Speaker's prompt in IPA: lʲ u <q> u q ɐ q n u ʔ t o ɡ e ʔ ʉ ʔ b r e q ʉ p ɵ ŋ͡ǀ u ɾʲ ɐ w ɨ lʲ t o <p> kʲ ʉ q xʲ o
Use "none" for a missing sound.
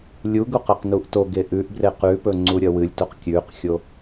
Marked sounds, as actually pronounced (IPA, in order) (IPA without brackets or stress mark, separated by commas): ɡ, q